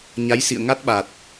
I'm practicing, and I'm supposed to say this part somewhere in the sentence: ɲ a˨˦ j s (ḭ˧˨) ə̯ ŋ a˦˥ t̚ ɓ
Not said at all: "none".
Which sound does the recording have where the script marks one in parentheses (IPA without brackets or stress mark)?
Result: ḭ˧˨